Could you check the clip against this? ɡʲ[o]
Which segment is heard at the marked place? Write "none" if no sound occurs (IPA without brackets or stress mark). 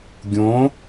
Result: õ